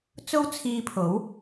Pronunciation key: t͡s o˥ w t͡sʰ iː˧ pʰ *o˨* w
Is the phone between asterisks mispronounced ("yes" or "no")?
yes